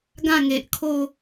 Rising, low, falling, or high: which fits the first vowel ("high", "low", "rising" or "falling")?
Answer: falling